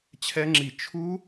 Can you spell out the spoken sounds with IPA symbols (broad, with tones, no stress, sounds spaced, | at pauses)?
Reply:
t͡ɕʰ ɛ˦˥ ŋ͡ǁ i˦˨ t͡ʃʰ u˦˥